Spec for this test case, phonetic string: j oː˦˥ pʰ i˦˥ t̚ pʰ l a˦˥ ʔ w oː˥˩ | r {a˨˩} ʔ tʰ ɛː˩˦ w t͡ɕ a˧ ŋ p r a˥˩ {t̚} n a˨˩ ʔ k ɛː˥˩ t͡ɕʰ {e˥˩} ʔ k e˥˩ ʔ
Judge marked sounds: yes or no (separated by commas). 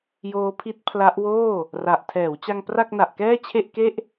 yes, no, yes